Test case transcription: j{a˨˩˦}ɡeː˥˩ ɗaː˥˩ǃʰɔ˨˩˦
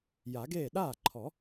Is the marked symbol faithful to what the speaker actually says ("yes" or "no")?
yes